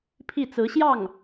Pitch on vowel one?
falling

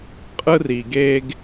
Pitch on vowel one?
high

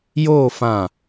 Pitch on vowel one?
falling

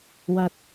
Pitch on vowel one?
low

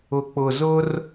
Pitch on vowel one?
low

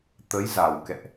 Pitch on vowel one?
rising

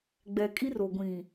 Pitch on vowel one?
low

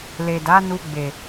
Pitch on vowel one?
low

